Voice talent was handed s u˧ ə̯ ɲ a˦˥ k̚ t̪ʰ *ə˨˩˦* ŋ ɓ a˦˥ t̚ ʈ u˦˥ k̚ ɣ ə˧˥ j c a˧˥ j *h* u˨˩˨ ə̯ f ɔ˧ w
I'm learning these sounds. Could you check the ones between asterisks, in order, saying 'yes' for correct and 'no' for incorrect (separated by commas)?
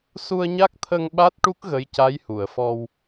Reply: no, yes